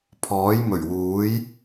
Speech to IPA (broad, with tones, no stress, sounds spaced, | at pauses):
pʰ ɔː˨˥ j m ɵ˨˩ ɥ w uː˨˥ j